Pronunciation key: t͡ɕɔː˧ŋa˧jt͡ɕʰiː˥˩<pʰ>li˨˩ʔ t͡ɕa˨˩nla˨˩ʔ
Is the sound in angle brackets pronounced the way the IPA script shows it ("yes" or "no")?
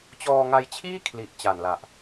no